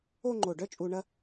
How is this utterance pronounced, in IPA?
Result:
o˥˧ ŋ͡ǃ o˧˩ ɖ œ˥ t͡ʃʼ u˧ ɳ ɐ˥

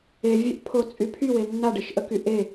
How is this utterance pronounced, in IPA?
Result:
e vʲ œ ʔ pʰ o t͡sʼ y pʰ y w e nː a ɖ e ʃ ʔ ə k y ʔ e

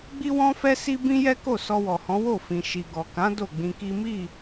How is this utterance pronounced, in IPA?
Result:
ɡ͡b i˦ w ɔ̃˦ f ɛ˦ s i˦ b ĩ˦ j ɛ˦ k o˦˨ s ɔ˧ w ɔ˨ h ɔ̃˨˦ w o˦˨ f ĩ˨ ʃ i˨ ɡ ɔ˨ k ã˨˦ d o˦˨ ɡ͡b ĩ˧ k i˦ m i˦˨

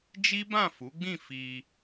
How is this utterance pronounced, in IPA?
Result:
d͡ʒ i˦ b ã˦˨ f u˨˦ ɡ͡b ĩ˦˨ f i˧

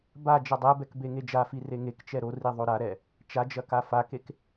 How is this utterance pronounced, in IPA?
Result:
b a d͡ʒ ɐ dˤ ɛ b ɛ k b e ŋ e d͡ʒ a f i r e ŋ e k t͡ʃ ɛ ɾ o r i ðˤ o ɾ a ɾ ɛ | t͡ʃ a d͡ʒ ɐ k a f a k e k

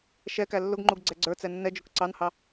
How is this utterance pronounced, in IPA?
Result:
ʃ ɛ k æ lː ʊ ɡ ŋ͡ǃ u ɡ ɡ͡ǀ ɛ ɡ͡ǀ ə˞ t͡s ɛ nː ɛ d͡ʒ ʊ k ǀ ɑ n h ɑ

